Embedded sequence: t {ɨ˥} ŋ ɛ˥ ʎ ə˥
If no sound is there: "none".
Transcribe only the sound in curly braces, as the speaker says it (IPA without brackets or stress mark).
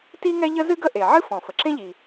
i˥